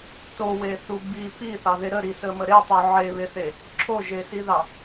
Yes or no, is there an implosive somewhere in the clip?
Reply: no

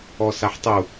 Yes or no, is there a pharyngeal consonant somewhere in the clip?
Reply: yes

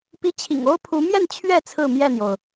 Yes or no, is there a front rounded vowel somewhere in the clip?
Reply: no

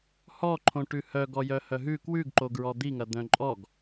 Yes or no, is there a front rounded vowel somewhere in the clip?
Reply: yes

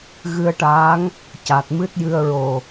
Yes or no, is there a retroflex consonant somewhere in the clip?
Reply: yes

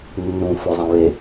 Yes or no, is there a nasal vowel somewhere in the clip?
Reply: yes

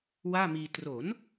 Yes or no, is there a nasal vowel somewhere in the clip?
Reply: no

